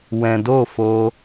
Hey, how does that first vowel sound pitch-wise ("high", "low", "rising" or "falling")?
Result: low